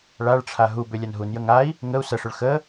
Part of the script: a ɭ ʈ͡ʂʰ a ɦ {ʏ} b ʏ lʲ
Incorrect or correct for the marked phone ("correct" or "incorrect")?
incorrect